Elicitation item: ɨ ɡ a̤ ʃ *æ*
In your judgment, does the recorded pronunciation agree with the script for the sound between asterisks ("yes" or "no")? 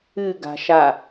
no